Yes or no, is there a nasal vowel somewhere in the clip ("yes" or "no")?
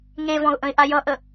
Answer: yes